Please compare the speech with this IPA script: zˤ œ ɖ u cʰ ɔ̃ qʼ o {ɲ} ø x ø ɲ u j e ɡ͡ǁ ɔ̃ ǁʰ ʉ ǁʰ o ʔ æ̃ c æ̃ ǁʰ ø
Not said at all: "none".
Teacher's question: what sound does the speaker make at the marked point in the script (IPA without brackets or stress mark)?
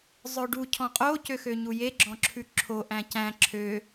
c